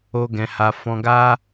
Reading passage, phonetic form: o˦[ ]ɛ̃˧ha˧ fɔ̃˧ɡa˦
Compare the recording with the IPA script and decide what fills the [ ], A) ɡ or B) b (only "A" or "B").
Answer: A